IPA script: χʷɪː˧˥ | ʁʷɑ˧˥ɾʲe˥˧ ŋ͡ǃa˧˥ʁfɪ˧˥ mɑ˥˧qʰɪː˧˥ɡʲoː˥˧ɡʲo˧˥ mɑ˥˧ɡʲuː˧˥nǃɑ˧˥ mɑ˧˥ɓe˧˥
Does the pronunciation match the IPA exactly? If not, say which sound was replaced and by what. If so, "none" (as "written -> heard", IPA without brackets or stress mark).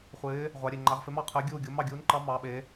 oː˥˧ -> uː˥˧